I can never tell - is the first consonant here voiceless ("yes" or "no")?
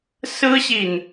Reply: yes